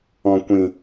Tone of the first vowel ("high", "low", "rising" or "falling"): low